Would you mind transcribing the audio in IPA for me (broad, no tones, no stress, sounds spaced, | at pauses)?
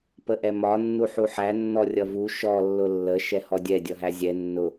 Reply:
p ə ʔ ɛ m ɒ nː u ħ u ħ æ nː ɔ rʲ ʌ v u ʃ ɔ lː ʊ lː ə ʃ ɛ h ɔ dʲ ɛ dʲ ʌ ɦ æ zʲ ɛ nː ʊ